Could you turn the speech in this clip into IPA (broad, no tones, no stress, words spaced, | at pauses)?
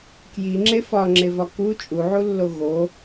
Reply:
kjiŋ͡ǁe fɒŋ͡ǁevɒ ku t͡ʃʼuʕulːo ɣo